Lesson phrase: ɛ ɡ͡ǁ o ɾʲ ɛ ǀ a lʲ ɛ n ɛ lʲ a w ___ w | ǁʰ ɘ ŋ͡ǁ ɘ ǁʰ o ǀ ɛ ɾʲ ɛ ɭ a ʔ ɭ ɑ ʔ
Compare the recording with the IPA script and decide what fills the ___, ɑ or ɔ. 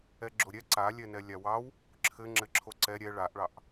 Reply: ɑ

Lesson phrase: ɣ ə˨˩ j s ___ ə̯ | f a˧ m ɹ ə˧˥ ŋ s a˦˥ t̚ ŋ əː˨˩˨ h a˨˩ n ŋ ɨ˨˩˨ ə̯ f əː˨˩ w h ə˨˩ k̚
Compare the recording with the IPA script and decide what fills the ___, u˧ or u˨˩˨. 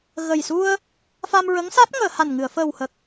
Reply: u˧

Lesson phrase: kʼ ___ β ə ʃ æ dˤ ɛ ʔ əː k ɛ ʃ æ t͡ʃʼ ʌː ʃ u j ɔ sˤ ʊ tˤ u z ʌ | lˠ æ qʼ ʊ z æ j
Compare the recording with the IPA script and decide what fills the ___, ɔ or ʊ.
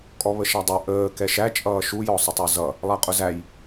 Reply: ɔ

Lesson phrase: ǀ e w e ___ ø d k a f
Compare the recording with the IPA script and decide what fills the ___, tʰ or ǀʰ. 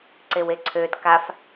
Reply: ǀʰ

